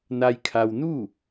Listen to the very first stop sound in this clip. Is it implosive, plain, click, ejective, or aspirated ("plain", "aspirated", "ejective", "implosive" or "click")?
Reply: aspirated